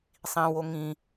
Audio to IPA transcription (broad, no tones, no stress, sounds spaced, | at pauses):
sˤ ĩ w o ŋ ĩ